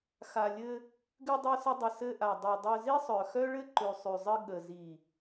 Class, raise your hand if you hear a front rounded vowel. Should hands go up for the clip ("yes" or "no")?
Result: yes